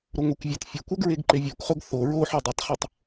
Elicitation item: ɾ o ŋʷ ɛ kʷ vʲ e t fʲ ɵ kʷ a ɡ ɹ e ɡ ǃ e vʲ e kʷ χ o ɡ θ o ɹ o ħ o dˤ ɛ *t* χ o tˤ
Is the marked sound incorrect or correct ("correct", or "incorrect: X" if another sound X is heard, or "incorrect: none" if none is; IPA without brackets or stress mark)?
incorrect: tˤ